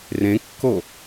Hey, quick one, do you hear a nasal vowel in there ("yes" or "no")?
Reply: yes